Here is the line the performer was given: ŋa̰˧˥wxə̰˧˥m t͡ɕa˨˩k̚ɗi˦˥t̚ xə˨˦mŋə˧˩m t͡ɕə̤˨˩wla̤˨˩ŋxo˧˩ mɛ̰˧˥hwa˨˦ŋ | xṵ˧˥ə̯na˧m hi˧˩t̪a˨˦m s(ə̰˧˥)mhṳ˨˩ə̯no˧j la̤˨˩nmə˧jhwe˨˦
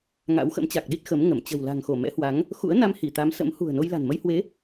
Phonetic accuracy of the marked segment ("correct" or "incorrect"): correct